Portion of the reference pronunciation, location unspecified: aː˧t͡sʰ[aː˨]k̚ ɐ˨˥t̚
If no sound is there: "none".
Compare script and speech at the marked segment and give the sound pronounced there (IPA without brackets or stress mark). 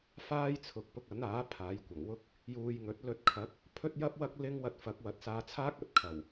aː˥